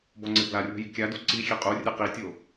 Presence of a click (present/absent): present